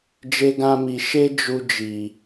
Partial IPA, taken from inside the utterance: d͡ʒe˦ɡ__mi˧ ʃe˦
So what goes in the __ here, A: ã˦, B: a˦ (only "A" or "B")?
A